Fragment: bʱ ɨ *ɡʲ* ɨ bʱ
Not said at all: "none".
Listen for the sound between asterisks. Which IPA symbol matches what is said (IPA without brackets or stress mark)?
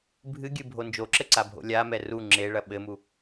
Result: ɡʲ